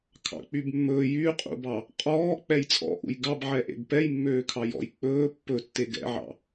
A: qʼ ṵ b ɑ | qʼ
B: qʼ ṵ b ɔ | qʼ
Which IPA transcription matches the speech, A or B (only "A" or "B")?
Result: A